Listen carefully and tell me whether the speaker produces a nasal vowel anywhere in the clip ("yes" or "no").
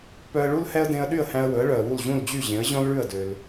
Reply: yes